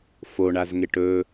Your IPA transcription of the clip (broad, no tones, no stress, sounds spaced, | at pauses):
f o ɳ a z ŋ e ʈ ɵ